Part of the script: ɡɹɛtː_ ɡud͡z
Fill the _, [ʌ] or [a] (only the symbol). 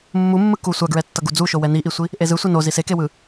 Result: ʌ